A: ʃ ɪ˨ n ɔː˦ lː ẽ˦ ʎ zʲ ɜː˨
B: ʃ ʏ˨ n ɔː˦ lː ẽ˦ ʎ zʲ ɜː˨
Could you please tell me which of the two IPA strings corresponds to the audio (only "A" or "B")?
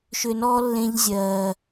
B